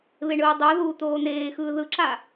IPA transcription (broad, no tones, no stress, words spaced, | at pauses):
βeɳɯːdˤoðuː t̪oːn̪eːxɯː ðɯǁa